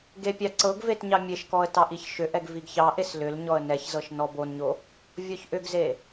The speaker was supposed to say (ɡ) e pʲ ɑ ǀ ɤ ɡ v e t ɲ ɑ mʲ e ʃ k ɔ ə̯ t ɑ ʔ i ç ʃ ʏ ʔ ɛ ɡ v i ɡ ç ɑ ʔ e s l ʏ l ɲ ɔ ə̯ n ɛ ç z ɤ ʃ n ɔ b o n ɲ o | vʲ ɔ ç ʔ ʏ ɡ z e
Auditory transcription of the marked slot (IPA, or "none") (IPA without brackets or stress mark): ɡ